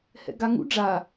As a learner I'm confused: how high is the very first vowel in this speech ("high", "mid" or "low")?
mid